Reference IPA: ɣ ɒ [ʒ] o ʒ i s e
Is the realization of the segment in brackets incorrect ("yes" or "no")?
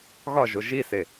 no